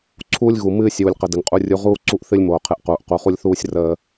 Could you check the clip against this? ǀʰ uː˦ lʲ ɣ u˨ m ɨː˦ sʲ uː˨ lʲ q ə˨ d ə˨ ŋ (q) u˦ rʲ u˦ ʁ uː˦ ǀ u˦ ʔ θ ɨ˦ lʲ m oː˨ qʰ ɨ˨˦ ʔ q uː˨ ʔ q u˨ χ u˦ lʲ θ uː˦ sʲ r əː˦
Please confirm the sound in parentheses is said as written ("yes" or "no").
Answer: no